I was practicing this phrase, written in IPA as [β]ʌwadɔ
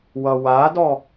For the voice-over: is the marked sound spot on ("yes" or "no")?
no